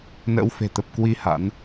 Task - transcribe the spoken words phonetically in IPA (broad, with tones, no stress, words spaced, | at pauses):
nə̰ː˧˥wfe̤˨˩t̪ə˨˩p̚ kwi˧ ha̰˧˥n